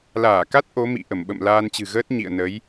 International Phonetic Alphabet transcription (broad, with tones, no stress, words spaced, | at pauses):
laː˧˩ka˦˥t̚ ʔo˨˦mḭ˧˨ ʔə˧˩mɓə̰˧˨m laː˧nt͡ɕɨ̤˨˩ɣəː˦˥t̚ ɲḭ˧˨ə̯ nə˨˦j